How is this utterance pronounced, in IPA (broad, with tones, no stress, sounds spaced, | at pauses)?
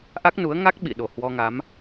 ʔ a˦˥ k̚ n u˨˦ ə̯ ŋ a˦˥ k̚ ɓ ḭ˧˨ ɗ o˨˩ h w ɔ˧ ŋ a˨˦ m